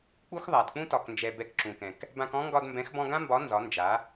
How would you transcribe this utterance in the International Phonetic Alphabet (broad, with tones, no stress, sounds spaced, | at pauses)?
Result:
k͡p u˦ x ðˤ a˨ d k͡p ũ˦ t ɒ˨ k n d͡ʒ ɛ˨ b ɛ˧ k ǁ ũ˨ k ɛ̃˨ k | b ã˧ k ɔ̃˦ ŋ ɡ ɒ˧ d m b ɛ̃˨˦ x b ɔ̃˧ ɡ ã˦ m b ɒ˨˦ n z ɒ˨˦ n d͡ʒ a˨˦